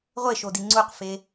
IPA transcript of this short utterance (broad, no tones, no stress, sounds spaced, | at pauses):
ʁʷ e ʃ o d i ŋ͡ǀ u q f e